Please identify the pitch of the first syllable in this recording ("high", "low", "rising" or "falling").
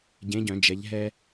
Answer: rising